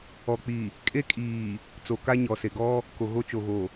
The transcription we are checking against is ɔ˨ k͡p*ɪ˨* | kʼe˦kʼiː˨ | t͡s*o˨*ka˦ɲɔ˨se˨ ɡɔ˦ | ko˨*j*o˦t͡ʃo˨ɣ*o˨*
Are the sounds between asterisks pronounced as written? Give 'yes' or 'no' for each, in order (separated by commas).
no, yes, no, yes